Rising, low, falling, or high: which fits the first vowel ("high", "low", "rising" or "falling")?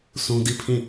high